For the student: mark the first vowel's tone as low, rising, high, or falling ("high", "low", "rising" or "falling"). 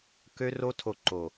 high